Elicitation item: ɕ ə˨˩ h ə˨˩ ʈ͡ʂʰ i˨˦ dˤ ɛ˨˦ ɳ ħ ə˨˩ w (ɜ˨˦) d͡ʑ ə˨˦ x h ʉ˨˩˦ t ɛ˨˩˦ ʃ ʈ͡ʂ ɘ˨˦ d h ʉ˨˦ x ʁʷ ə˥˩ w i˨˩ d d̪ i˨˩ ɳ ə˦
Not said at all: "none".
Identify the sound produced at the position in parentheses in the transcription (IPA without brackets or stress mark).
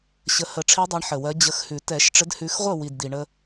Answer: ɜ˨˦